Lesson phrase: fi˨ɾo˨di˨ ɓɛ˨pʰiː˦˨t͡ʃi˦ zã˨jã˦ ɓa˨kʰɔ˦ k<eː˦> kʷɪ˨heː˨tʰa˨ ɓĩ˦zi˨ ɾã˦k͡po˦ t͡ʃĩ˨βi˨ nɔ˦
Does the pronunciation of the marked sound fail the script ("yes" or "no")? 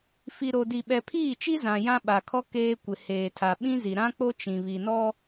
no